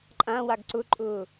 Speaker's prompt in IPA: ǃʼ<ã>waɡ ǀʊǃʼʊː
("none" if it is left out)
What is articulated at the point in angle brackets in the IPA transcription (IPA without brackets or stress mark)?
ã